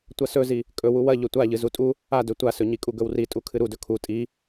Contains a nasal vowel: no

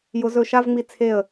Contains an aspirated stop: yes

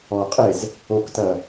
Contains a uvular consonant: yes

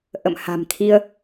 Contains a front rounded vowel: no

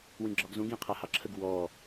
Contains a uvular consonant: yes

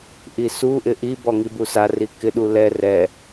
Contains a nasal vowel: no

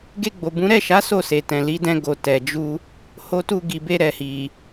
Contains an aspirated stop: no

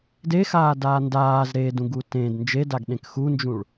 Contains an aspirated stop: no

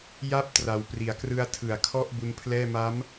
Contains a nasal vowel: no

